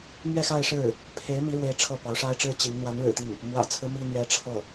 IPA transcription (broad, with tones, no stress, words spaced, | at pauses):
mɥɛ˥˧xa˥˧ɪ̯ʂɻ̩˥˩ | pʰe˧˥ɪ̯ mi˧˥ɻwe˧˥ɪ̯ ʈ͡ʂʰɤ˥˩pɑ˧˥ʊ̯ ʂa˥ɪ̯ʈ͡ʂɻ̩˥ t͡ɕi˧˥ŋ n̪wa˧˥nɻɻ̩˨˩t̪i˥˩ŋ | mwä̰˨˩t͡sʰɹ̩˦ mi˥n̪ɥɛ˥ ʈ͡ʂʰɤ˥˩